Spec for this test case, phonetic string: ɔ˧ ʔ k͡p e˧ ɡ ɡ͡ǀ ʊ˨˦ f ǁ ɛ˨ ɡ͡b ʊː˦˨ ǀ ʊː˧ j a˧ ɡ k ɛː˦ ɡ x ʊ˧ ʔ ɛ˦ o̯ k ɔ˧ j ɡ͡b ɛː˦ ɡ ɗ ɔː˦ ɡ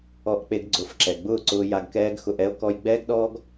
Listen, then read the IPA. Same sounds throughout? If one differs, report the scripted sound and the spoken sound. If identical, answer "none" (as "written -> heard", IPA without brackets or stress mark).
none